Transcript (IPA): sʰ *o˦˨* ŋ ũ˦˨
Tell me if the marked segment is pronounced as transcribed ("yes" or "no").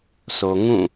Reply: no